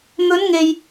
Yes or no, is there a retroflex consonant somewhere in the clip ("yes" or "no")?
no